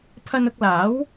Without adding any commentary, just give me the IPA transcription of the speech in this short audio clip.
pʰ ɐ˧ n ʊ˧ k̚ l aː˨˥ w

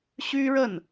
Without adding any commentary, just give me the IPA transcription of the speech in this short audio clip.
ɕ y˥ ɻ ə˥˩ n

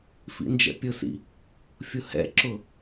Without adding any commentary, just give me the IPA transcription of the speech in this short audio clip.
f ḭ n d͡ʒ ɛ̰ pʲ ʊ s ḭ | fʲ ʊ h ɛ̰ ǁ ʊ

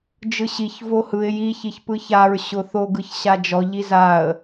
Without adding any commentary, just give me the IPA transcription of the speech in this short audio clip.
d͡ʒ ɯ ɕ i ç v o h ɯ ɪ̯ j i ç i ç p ɯ ç a ɹ ɕ ʊ θ o ɡ ɯ ç ɕ a d͡ʒ ɔ ʎ i z a ə̯

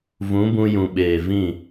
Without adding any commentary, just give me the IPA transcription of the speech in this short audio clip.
v ũ˨˦ b ũ˧ j ũ˨ ɓ eː˨ v ĩ˦˨

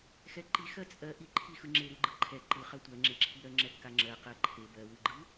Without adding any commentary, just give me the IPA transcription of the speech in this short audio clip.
x ɛ ǃ i x ɜ t͡sʼ ɜ ʔ i ǃʰ i x ɯ ŋ͡ǁ e ɾ ɯ ɡ͡ǃ ɯ ǃʰ ɛ ǃ ɯ χ ɜ tʷ ɜ ŋ͡ǁ e ǁʰ i ɾ ɜ ŋ͡ǁ ɛ kː a ŋ͡ǁ ɜ q ɜ ǃʰ e b ɜ w ɯ ɡ͡ǃ ɯ

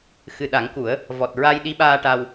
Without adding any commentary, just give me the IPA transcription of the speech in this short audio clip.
x ɨ˨˩ ɗ a˨˩˦ ŋ k u˨˩˦ ə̯ | v ɔ˨˩ t̚ ɹ a˧ j ɗ i˧˥ ɓ aː˧ ʈ a˧ w

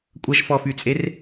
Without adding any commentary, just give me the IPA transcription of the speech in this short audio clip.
kʷʼ ɐ ʒ f ɔ f y t͡sʼ e r

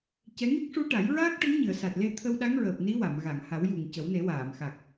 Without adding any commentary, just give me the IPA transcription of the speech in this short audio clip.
c ɛ˧˥ ŋ i˦˥ k̚ ʂ u˧˥ ʈ a˨˩˦ j ɹ aː˦˥ k̚ ʈ ə˧˥ ŋ ɲ ɨ˨˩˨ ə̯ s a˨˩ t̚ l e˧ t̪ʰ ə˧ w ɗ a˧˥ ŋ ɹ əː˨˩ p̚ n i˧˥ w a˨˩˨ m ɣ a˨˩˨ ŋ h a˨˩˦ w j u˨˩ ŋ c ə˨˩˦ w n e˨˩˦ w aː˨˩˨ m x a˨˩ k̚

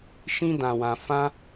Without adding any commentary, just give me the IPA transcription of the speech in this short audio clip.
ʃ ĩ˦ d ã˧ w ã˧ f ã˦

